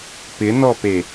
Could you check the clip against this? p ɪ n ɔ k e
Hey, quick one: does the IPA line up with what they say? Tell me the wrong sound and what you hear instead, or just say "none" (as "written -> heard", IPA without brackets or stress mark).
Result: k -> p